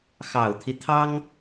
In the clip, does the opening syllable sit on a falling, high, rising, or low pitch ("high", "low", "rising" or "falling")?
low